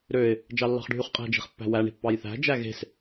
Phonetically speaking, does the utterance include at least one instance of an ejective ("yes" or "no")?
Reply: yes